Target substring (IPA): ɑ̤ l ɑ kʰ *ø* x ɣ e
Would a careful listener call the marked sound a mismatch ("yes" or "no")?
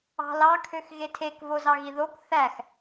no